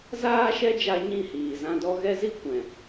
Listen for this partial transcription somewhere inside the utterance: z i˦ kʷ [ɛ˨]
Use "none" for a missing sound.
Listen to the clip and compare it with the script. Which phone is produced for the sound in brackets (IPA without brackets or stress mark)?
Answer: ɛ̃˨